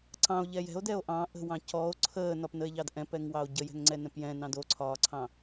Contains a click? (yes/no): yes